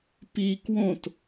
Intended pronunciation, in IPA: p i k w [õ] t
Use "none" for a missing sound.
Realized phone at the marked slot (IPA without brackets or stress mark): õ